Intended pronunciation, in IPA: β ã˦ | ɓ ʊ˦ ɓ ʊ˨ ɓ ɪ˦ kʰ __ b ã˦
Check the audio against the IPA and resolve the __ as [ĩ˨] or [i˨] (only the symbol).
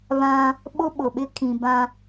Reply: ĩ˨